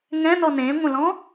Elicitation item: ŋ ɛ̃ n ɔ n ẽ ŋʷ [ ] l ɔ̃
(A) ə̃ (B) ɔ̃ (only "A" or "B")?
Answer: A